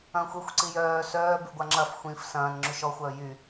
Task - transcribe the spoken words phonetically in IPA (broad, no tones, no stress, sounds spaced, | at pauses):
ɐ̃ː xʷ y xʷ ǀ i j œː s œː b y ɡʷ a ŋ͡ǁ ɐ f xʷ ĩ f s ɐ̃ː n ŋ͡ǁ y ʃ ɔ xʷ œː j y